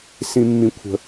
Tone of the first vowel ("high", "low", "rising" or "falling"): high